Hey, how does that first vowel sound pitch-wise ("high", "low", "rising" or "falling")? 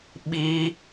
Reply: high